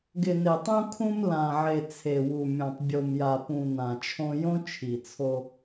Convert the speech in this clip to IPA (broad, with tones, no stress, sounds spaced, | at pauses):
ɡ ɪ˨ n e˨ tˤ ũ˦ kʰ ũ˦ m l ã˨ ʕ e˨ t͡sʰ e˨ w u˨ mʲ õ˨ tˤ bʲ o˨ m j a˨ p ũ˨ n ã˨ t͡ʃʰ õ˦ j õ˦ t͡ʃʰ i˨ t͡sʰ o˦